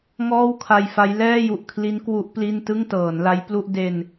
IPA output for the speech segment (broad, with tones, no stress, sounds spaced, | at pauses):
ŋ ɔː˥˩ w kʰ a˧ j f a˦˥ j l ɛː˥˩ j u˨˩ ʔ kʰ l i˦˥ n k w u˦˥ ʔ p l i˥˩ n t ɯ˥˩ ŋ t ɤː˩˦ n l a˦˥ j p l u˥˩ ʔ d e˧ n